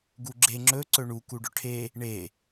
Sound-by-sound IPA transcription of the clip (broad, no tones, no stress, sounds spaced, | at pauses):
ɡ u ɡ͡ǁ e ŋ͡ǁ ɵ ǀ ɵ ɳ u k u ɖ ɵ ʈʰ e | ɳ e